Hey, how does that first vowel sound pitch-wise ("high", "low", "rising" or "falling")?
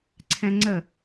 high